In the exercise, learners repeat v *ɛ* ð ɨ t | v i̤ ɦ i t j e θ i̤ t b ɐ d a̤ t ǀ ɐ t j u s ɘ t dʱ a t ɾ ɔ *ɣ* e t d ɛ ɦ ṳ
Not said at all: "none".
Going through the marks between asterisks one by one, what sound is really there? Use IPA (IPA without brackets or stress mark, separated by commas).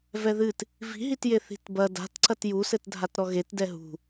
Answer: ɛ, ɣ